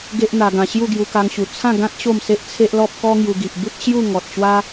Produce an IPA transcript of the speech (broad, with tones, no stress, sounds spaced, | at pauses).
ɡ e˦ ʔ n̪ a˧ ɡ ã˧ ɕ j u˥˧ ɡ j u˧ k a˧ ŋ ɕ u˨˩ t͡sʰ ã˥˧ ɡ ã˦ t̚ ɕ o˥˧ m s e˦ ʔ t͡sʰ e˦ ʔ l ɔ˦ p̚ k ɔ˦ ŋ j u˧ ɡ i˨ ʔ b u˦ t̚ ɕ j u˥˧ ŋ ɔ˨ t̚ ɕ w a˦